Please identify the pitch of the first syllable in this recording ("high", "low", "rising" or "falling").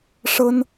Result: high